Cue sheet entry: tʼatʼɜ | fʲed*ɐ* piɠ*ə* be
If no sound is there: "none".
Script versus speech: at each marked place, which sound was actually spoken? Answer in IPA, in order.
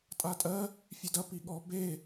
ɐ, ɔ

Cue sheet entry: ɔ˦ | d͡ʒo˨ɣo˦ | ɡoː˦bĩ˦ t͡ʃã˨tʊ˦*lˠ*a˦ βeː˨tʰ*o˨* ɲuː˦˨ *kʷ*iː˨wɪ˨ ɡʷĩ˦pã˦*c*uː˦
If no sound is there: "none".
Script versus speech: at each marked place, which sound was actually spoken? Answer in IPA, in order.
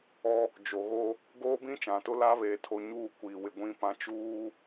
l, o˨, kʷ, t͡ʃ

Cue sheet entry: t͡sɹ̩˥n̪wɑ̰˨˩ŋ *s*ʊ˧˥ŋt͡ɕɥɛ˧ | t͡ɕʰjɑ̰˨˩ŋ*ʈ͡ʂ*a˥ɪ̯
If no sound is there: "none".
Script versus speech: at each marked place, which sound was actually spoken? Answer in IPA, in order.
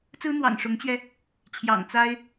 ʂ, t͡s

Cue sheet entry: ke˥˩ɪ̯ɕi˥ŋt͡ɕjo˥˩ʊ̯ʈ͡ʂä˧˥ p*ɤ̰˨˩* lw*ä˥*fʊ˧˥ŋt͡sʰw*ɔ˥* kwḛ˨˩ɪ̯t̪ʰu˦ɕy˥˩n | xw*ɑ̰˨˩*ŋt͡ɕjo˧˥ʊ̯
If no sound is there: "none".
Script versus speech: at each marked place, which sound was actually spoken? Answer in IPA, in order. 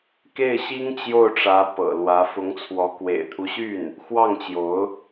ɤ̰˨˩, ä˧˥, ɔ˧˥, ɑ˥˩

